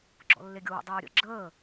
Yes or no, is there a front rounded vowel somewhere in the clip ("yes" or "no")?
no